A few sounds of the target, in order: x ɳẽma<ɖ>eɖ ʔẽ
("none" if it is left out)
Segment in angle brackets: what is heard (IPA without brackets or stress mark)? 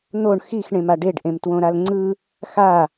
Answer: ɖ